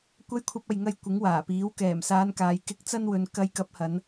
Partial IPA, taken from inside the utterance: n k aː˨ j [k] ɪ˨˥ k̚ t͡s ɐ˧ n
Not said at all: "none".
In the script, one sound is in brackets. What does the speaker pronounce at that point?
k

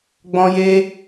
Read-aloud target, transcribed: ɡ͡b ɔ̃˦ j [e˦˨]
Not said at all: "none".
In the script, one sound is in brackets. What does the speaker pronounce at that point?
e˦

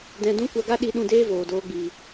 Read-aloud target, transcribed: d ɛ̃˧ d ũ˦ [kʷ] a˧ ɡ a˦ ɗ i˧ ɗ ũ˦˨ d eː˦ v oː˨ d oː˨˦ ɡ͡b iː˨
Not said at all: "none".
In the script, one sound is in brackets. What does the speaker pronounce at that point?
kʷ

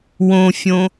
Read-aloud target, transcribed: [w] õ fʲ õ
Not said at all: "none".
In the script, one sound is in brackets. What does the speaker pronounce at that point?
w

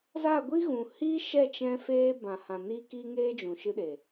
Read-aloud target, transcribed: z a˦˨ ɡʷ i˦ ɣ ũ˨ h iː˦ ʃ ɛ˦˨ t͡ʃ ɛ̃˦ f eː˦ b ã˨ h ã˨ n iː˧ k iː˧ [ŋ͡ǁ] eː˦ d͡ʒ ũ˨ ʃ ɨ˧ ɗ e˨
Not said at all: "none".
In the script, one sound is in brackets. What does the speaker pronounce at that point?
ŋ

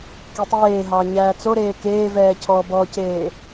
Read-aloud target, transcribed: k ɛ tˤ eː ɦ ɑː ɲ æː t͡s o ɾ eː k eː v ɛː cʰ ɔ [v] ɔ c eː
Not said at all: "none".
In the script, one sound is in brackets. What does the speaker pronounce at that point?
b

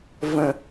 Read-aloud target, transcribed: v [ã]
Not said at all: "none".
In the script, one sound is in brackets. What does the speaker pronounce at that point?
ə̃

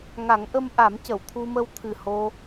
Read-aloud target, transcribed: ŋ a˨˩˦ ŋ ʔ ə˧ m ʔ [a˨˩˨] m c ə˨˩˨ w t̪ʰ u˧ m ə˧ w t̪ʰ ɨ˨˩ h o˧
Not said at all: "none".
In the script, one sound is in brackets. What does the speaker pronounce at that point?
a˨˩˦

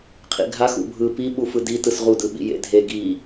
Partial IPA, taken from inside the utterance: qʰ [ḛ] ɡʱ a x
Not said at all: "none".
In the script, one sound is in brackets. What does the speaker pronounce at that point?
ḭ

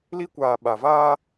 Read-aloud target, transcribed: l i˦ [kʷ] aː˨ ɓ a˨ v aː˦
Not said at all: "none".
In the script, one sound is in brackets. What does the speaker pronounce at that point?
kʷ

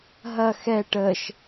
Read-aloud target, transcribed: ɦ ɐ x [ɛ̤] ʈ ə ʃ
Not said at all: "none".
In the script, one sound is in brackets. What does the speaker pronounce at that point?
ɛ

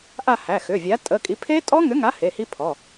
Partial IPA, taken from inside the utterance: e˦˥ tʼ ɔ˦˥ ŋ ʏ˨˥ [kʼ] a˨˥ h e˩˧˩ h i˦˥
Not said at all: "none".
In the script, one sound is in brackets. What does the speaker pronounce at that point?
ŋ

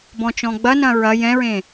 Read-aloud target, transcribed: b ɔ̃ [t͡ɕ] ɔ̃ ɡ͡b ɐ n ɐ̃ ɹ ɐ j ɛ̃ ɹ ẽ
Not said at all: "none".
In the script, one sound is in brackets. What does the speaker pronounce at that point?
t͡ʃ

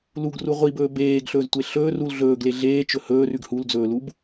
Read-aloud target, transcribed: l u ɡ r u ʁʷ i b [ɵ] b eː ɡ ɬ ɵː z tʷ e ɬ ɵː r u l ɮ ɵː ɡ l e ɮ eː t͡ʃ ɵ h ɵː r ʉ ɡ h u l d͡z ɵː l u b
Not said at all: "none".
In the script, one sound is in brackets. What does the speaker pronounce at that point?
ɵː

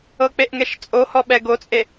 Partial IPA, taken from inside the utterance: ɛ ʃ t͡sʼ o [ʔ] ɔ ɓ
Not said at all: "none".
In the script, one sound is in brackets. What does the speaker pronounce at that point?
h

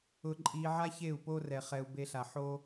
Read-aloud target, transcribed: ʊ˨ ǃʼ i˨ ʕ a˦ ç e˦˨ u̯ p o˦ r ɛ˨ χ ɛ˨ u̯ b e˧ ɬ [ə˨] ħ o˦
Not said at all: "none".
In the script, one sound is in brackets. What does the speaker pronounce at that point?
a˨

